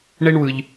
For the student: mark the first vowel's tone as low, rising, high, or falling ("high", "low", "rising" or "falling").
high